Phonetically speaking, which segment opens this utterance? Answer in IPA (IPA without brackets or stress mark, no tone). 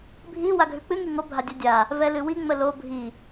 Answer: bʱ